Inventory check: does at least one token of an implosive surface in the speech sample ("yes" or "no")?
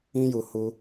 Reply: no